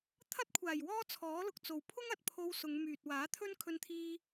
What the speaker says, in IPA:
t̪ʰ ɐ˥ t̚ kʷʰ aː˨˩ j w ɔː˥ t͡sʰ ɔː˨˥ l ʊ˨ k̚ t͡s o˨ w pʰ ʊ˥ ŋ ɐ˨ t̚ pʰ o˧ w s ʊ˨˧ ŋ m yː˨ t̚ w aː˨˥ t̪ʰ ɵ˥ n kʰ ɵ˧ n t̪ʰ iː˧

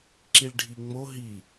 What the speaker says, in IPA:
ǁ i ɭ ɖʱ i ŋ͡m o ɦ i

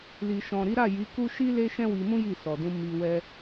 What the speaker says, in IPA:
l i˨ ʃ ɔ̃˨ ɾ i˨˦ ɾ a˦˨ j i˨˦ k u˦ ʃ i˦ l e˦ ʃ ɛ̃˦ w i˧ m ũ˦ j i˦˨ s ɔ˨ d ũ˧ m i˧ w ɛ˧

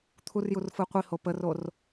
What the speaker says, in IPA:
t̪ʰ u r j u r f ɯ qʷ i h o p ə r o r

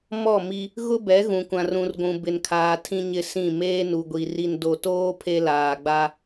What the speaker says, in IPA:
m ɔ˦˨ m i˦ | ɣ ʊ˦ b ɛ˨˦ ɣ ũ˨ kʷ ã˨ r ũ˨ r ɡʷ ũ˨ b ɪ˨ n kʰ aː˨ tʰ ĩ˦ ɲ ɪ˦ s ĩ˦˨ m eː˦ n u˨ ɡʷ i˨ r i˨ n d o˨ t oː˦ pʰ e˦ l aː˨ ɡ͡b a˦

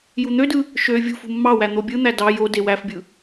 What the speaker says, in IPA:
j u n̪ ø d ɯ | ʃ ø vʲ ṳ f ṳ mː ɑ w æ n̪ o bʲ ɯ n̪ æ d ɑ j o d e w æ f bʲ ɯ

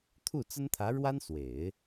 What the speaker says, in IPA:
t̪ʰ u˥˩ t͡s ə˥ n t̪ʰ ä˧˥ ɻ w a˥ n s w e˨˩˦ ɪ̯

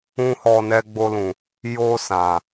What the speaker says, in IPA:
ũ˦ h ɔ˧ n ɛ˧ ɡ͡b o˧ l ũ˨ | j o˧ s ã˨

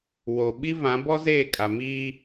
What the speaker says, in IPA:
w o˨ ɓ i˦ v ã˨˦ b ɔ˦ z eː˦˨ kʼ a˨ m iː˦

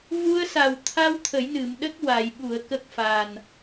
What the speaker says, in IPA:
v u˧ ə̯ s a˨˩ w t̪ʰ a˧ w t̪ʰ ə˨˩˦ j n ɨ˨˩˨ m ɗ ə˦˥ k̚ w a˨˩˨ j ɓ u˨˩˨ ə̯ k ə˦˥ k̚ f a˨˩ n

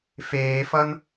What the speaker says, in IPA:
f eː f ʌ n

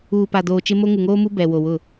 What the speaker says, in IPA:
uː˨ p a˨ d oː˨ t͡ʃ ɪ˦ m o˦ ŋ u˨ ŋ oː˦ m u˦ b ɛ˨ w o˨ w ʊ˦˨

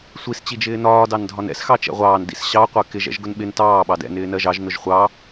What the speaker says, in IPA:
sʷ i s t͡ɕ i d͡ʒ ɪː n ɒː d ɑ n dʱ ɒ n ɛ̰ s x ɑ t͡ʃ ɛ̰ ʁʷ ɑː n d ḭ s ɕ ɑ qʷ ɜ k ɪ ʒ ɛ̰ ʒ ɡ ʊ n ɓ ɪ n t ɑː ɓ ɑ d ɛ̰ n ɪː n ɜ ʒ ɑ ʒ n ʊ ʒ χʷ ɑ

